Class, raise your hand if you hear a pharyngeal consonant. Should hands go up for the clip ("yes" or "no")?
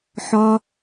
yes